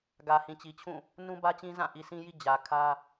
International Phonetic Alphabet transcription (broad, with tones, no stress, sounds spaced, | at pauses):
ɡ ä˨ h ĩ˨ t͡ɕ i˨ t͡ɕʰ ũ˦˨ | n ũ˦ b ä˦ t͡ɕ ĩ˦ z ã˦˨ ʔ i˨ sʰ ĩ˦ j i˦ d͡ʑ ä˨ kʰ ä˦